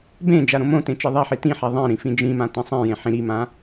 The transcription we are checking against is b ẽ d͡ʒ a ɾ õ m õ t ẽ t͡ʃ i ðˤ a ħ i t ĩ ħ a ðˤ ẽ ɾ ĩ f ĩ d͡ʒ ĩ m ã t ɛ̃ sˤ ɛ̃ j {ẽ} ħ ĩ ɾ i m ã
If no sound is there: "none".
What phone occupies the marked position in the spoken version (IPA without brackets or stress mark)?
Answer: ẽ